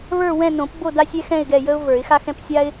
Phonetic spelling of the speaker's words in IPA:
βə˞˦˨wɛ̃˦˨ nõ˨˩˦pbo˦˨ da˦sʲɛ˦xɛ̃˦˨ɪ̯ɡɛ˦˨ jə˦ʊ̯və˞˨˩˦ɪ̯xa˦xɛ̃˦p sʲa˦ɪ̯

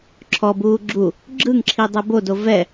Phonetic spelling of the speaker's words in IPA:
ǁʰɔbuː ɡ͡ǁu | ɡ͡ǁɯŋǁʰidˤɛ bodo vɛ

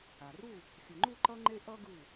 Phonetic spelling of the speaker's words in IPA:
a˩ru˥˨ | xʲɯ˩ŋ͡ǃu˥˨ǃʌ˦ŋ͡ǃe˦ ʔʌ˦ɡɯ˧˩

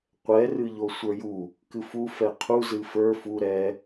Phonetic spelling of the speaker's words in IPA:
qʷɛ rɨʎosʷə˞ju | kɨfu fɛqʰu zɨfə˞ fu ɾɛ

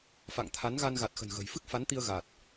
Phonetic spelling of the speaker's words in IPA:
fa̰˧˨ŋt̪ʰa˨˦nɣa˧n ɣa˨˩t̚xə̤˨˩nɣə̤˨˩jfɨ˦˥k̚ fa˨˦nt̪i˧ə̯ ɣa˨˩t̚

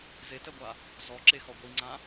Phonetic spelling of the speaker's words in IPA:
zetɛɡʷa | zɔǁexɔ ɡʷiŋ͡ǀã

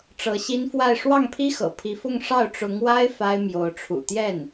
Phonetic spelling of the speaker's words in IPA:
ʈ͡ʂɤ˧˥ɕi˥n fwa˥˧ɪ̯ ʂwɑ˥˩ŋpʰi˥xɤ̰˨˩ pʰi˧˥fʊ˥˧ŋ ʂɑ˥˩ʊ̯ʈ͡ʂʊ˧˥ŋwa˥ɪ̯ fa˥ɪ̯mjo˧˥ʊ̯ʈ͡ʂʰṵ˨˩ t̪jɛ˥˩n

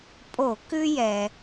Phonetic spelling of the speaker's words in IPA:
pʼo˧˩˧kʉ˦jɛ˩

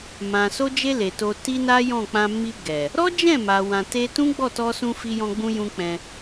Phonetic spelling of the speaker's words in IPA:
mã˨ so˧d͡ʒe˧ le˨to˧ ti˦na˦jɔ̃˦˨k͡pã˧ mi˧ ɡɛ˨ | ɾɔ˦d͡ʒɛ̃˦˨ma˨ wã˨te˧ tũ˦ ɡ͡bɔ˦˨tɔ˧sũ˧ fi˧jɔ̃˧ɡ͡bũ˧jũ˧ k͡pɛ̃˧

